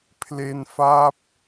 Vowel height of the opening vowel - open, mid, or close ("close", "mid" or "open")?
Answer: mid